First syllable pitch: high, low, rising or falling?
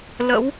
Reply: rising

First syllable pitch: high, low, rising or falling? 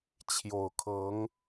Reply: low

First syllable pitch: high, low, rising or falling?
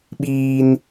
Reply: high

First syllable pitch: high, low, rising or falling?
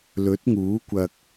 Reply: rising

